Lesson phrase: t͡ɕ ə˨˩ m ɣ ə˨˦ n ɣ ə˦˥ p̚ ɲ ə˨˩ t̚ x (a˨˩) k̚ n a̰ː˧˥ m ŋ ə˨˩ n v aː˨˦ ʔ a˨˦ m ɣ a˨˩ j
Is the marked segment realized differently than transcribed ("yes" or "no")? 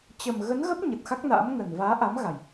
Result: yes